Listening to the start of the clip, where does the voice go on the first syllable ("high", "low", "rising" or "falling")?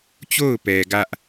falling